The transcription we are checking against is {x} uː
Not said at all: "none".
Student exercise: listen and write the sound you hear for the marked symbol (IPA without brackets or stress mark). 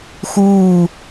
x